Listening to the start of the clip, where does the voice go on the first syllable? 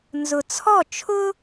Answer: low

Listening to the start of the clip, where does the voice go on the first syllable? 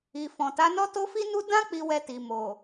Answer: low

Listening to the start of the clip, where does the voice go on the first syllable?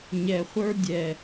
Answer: low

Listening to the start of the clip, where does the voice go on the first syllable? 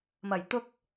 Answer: low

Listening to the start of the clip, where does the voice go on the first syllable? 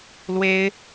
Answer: high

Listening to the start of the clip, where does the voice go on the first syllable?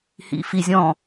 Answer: low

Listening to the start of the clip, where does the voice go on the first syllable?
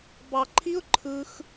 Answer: low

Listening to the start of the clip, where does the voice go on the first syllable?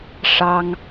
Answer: high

